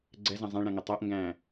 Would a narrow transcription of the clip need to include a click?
yes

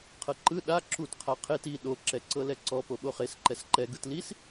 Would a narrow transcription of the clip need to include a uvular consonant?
yes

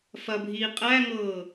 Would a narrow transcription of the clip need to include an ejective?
yes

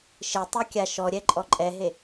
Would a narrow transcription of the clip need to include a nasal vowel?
no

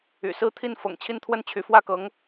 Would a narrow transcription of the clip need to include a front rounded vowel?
yes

